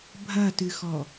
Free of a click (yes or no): yes